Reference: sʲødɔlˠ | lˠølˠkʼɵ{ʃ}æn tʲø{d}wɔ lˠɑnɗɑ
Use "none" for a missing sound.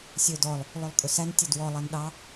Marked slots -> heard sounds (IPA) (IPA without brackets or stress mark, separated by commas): s, d